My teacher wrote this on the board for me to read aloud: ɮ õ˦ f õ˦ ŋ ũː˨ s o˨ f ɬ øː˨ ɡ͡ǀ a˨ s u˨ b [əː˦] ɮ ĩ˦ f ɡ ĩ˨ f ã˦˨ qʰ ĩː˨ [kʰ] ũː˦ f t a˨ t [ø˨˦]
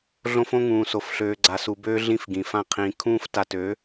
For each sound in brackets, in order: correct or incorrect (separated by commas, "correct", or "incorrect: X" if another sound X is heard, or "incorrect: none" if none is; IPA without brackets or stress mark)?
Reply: incorrect: øː˦, correct, correct